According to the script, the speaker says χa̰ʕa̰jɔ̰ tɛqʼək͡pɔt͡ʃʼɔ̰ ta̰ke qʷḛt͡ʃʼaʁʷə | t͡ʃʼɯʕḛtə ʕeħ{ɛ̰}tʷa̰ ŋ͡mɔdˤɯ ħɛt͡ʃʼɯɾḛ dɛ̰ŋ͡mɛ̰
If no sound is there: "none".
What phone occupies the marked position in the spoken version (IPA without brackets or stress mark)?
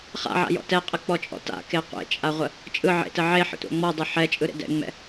ə̰